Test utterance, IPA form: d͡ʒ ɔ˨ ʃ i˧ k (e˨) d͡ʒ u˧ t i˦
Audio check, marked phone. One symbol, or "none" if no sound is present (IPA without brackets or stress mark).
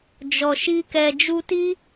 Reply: ɛ˨